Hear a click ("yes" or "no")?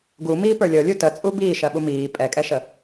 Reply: no